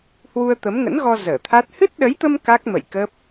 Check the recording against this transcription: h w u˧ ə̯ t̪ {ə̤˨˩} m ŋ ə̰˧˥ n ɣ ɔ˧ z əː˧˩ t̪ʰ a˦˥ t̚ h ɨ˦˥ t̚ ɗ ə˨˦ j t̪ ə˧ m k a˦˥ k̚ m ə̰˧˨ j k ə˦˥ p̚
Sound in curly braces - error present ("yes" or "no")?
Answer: yes